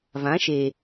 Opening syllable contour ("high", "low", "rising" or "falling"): rising